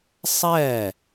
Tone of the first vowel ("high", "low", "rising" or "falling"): falling